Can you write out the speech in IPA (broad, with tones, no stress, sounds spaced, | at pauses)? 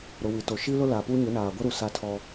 ɾ ʊ˨ w i˨ t o˨ ʃ i˦ l ʊ˦ l a˨ p u˦ ɲ ʊ˨˦ n aː˨ ɡʷ ɛ˦ ɾ u˨ s a˦ tʰ ɔ˦